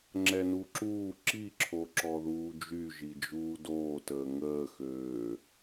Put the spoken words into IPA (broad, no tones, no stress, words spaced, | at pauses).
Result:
ŋ͡ǁɛnuǁuː ǁi ǁʰoǁɔðuːd͡ʒy ʒid͡ʒuːdoːtəː ŋəːxøː